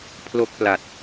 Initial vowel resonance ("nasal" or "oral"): oral